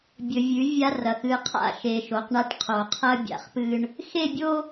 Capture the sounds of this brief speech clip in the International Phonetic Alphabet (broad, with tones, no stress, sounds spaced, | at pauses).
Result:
bʲ ɵ˨ vʲ ʉ˨˦ vʲ a˦ r ɐ˨ x ɨ˨ qʰ a̰˦˨ ʃ e˨ ʃ o˨ q ɳ a˦ ʈ qʰ o˨ qʰ ɐ˦ bʲ a̰˨ χ p ɨ˦ ɳ | x e˦˨ bʲ o˦